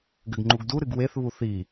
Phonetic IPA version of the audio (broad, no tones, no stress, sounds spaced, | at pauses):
ɡ ɘ ɡ ŋ͡ǃ u ɡ d u ɾ ɨ ɡ w e θ β u θ i